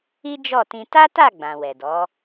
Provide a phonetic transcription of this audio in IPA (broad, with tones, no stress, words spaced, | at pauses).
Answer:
i˦d͡ʒɔ˦˨tĩ˧ ta˦ta˦˨ ɡ͡bã˨wɛ˨dɔ˨˦